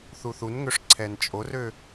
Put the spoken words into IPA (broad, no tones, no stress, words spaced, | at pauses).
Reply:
θuθunŋøʂ ǀʰɛnt͡ʃʼorø